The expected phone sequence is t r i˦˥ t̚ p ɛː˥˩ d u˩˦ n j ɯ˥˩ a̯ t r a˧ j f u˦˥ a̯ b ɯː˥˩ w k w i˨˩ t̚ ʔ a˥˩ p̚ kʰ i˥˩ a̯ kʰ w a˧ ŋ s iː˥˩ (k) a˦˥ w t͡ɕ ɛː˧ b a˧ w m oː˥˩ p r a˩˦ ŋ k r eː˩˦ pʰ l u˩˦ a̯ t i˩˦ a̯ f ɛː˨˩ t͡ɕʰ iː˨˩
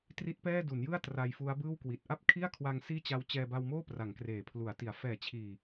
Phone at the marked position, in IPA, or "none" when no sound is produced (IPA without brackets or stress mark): t͡ɕ